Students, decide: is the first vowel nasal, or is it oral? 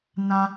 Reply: nasal